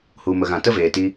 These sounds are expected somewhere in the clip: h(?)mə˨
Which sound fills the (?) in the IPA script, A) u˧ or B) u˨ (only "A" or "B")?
B